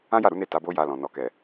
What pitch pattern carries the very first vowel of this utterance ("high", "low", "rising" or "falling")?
high